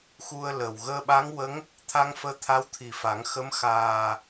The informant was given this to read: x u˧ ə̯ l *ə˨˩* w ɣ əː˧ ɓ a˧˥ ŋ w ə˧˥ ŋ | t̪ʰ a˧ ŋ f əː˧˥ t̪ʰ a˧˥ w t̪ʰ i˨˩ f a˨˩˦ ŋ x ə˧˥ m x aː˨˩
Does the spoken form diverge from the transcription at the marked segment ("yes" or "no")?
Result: no